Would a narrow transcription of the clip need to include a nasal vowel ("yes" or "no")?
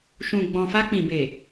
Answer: yes